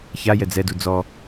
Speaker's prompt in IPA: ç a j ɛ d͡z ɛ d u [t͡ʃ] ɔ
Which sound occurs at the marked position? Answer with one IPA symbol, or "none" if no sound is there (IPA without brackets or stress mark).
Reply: d͡z